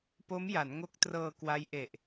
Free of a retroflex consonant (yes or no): yes